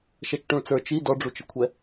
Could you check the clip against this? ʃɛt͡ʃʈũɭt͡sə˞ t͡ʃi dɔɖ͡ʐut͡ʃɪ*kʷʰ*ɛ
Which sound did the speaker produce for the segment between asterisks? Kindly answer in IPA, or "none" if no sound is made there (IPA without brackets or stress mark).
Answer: kʷʰ